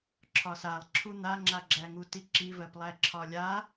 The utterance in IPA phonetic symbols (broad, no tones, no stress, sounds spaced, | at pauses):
ǁʰ ɒ s a lˠ ǁʰ u n̪ a ŋ͡ǁ a ɡ͡ǁ æ ŋ u t i ǁ i v ɜ p lˠ æ ǁʰ ɒ lʲ a